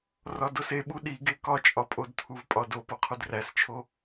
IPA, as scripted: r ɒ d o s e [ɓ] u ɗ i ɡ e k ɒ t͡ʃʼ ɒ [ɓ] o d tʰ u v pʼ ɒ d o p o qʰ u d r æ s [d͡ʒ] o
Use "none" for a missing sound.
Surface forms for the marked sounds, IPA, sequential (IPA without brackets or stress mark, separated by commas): ɓ, pʼ, t͡ʃʰ